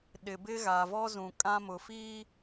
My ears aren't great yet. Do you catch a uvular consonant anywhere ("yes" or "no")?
no